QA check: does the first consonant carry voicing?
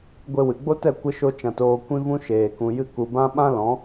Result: yes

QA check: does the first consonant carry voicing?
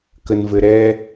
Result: no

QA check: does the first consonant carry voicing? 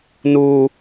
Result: yes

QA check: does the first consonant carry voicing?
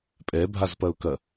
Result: no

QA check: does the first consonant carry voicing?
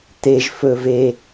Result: no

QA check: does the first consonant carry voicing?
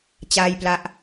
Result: no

